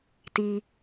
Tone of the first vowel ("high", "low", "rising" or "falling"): low